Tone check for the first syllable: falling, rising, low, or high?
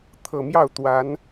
low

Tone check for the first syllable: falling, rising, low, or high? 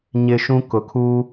low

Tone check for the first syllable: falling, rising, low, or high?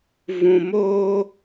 low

